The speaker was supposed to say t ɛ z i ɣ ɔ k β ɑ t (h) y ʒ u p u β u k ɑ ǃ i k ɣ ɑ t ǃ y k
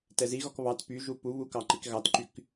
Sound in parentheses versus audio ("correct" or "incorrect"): incorrect